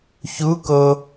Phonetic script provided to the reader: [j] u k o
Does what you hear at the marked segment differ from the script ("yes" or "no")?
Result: yes